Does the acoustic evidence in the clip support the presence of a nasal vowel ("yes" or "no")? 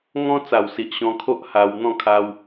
yes